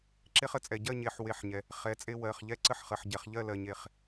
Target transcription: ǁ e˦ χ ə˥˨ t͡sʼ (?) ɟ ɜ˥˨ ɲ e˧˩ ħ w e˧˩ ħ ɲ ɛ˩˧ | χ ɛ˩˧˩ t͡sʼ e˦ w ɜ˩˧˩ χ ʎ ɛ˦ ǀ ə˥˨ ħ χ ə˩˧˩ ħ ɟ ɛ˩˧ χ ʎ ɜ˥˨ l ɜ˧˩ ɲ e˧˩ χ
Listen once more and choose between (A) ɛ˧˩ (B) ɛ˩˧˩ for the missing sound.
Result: B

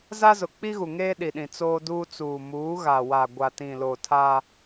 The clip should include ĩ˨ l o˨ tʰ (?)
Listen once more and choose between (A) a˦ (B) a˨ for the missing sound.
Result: A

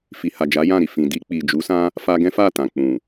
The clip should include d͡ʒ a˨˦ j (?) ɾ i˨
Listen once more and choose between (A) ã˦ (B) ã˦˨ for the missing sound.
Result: B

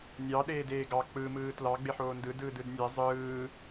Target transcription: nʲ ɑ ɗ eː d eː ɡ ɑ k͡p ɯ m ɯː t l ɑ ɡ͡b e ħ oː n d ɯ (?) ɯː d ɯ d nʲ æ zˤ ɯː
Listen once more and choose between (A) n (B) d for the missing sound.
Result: B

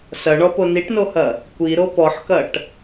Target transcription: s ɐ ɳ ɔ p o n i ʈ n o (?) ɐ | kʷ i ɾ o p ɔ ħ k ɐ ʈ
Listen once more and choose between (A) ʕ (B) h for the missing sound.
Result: B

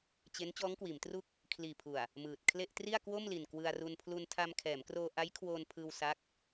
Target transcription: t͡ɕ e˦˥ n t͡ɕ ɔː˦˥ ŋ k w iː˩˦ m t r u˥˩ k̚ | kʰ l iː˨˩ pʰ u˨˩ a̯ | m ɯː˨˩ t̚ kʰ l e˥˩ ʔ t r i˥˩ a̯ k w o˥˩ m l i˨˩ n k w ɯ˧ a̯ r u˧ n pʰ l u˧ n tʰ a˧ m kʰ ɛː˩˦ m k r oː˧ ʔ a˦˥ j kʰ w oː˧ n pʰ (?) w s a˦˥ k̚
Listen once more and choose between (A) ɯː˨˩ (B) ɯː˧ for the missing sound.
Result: B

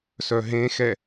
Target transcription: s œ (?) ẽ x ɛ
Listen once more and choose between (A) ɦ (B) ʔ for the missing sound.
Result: A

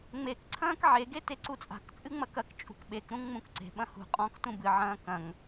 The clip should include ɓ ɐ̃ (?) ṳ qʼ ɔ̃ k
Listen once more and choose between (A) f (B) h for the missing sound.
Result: B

